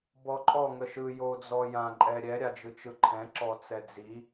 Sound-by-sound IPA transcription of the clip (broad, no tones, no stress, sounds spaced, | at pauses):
b ɔ ǃʼ ɔ ŋ ə ʃ ɯ j o d͡z ɔ j ã ǃʼ ɛ ɾʲ ɛ ɾʲ a d͡ʒ ɯ t͡ʃ ɯ ǃʰ ɛ̃ ǁ ɔ t͡s ɛ d͡z i